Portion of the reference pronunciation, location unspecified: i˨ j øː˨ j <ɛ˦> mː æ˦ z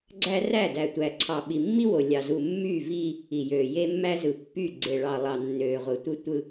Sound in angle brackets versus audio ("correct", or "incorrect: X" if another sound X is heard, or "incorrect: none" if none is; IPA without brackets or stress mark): incorrect: e˦